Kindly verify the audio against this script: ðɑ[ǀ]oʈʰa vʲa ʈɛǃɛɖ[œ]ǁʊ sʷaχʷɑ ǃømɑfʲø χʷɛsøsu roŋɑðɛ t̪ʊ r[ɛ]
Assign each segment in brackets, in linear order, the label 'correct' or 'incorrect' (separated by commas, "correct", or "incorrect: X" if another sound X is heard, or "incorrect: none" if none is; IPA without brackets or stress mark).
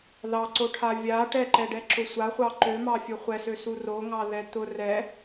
correct, incorrect: ɛ, correct